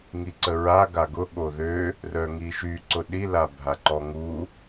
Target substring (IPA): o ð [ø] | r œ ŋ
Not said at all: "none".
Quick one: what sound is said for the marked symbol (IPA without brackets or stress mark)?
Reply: ø